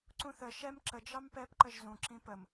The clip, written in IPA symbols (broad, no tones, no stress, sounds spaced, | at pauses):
ǀ ũ θ ə ʃ ɛ m ǁ ə d͡ʒ ɑ m p ɛ p ǃ ə ʒ z ũ ǁ ĩ p ə m